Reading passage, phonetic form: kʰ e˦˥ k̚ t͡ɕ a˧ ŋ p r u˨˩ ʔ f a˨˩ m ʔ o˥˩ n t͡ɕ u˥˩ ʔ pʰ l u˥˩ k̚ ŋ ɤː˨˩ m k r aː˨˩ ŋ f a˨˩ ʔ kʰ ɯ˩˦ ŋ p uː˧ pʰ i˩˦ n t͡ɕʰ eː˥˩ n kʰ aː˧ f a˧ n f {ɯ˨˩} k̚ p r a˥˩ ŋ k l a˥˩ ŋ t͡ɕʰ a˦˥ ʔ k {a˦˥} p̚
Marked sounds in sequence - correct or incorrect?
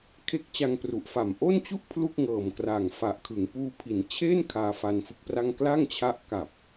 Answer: incorrect: ɯ˦˥, incorrect: a˨˩

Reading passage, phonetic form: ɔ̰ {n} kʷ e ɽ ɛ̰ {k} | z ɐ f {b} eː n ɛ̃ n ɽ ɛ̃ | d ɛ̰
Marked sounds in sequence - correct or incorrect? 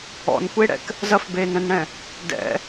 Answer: correct, correct, correct

